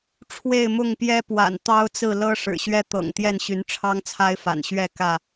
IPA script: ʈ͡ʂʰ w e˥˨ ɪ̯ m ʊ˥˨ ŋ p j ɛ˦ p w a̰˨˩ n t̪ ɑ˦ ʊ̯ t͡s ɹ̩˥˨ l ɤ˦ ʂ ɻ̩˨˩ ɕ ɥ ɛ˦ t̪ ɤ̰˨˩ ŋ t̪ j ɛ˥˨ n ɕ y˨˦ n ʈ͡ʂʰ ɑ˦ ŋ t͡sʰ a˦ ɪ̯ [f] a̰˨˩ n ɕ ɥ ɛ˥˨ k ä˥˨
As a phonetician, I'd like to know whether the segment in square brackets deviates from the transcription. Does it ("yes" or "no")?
no